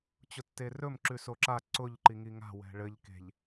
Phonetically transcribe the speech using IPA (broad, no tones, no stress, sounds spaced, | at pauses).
t͡ɕ ʊ tː e r ɵ m ǁ ʉ s o ǁ a ǀ ʊ ʎ ǃ i ŋ i ŋ a̤ w ɛ̤ ɭ ɘ ʎ k e̤ ʎ